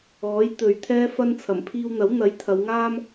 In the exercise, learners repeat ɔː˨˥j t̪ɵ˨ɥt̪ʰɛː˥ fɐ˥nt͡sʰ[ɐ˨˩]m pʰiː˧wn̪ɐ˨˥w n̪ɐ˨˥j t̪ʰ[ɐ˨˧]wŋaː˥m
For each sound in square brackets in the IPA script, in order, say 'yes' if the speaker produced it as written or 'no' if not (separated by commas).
yes, yes